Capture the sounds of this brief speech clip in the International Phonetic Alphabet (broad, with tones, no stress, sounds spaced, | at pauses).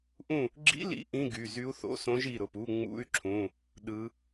ʔ ũ˥˨ | ɡ͡ǁ ḭ˧˥˧ l ḭ˧˥ ʔ ĩ˧˥˧ ɡ y˩˧˩ z y˧˥ u̯ θ o̰˧˥˧ s õ˧˥ ʒ i˩˧˩ ɾ ʊ˩˧˩ p u˧˥˧ ŋ͡m ṵ˧˥˧ y̯ ǁʰ ũ˩˧˩ | ɗ ɯ˧˥